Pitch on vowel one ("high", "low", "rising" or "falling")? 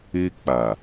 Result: high